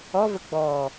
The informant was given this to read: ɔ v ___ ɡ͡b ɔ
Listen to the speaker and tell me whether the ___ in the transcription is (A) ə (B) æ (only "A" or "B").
A